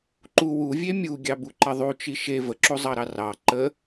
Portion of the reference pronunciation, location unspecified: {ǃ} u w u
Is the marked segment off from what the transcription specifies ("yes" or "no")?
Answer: no